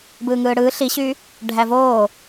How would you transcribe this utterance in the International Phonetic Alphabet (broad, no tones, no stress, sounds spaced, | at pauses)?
b ɯː ŋ ɯː ɽ ɯː ɬ i ɕ y | ɖʱ æ v oː